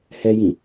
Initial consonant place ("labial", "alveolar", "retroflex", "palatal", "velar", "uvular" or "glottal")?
glottal